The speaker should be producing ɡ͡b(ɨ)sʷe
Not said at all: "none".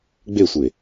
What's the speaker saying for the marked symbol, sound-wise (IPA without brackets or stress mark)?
e